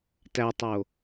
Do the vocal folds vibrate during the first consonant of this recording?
no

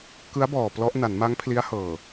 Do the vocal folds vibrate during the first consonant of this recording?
no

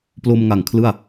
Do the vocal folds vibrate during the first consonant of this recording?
no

